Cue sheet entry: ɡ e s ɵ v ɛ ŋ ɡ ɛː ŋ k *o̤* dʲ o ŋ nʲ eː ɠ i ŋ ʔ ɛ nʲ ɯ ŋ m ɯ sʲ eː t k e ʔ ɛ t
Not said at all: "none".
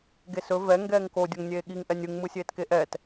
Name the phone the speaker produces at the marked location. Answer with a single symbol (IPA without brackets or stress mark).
o